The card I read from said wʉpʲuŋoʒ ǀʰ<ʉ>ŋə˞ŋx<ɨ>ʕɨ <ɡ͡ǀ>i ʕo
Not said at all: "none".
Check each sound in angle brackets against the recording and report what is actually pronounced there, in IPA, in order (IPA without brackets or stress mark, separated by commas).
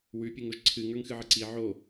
ɨ, ɨ, ǀ